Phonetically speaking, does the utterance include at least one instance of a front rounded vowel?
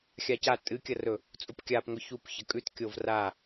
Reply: no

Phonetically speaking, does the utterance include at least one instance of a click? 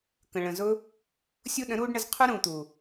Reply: no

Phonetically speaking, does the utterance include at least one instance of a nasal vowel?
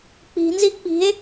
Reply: no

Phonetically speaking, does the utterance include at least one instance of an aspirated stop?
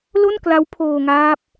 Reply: yes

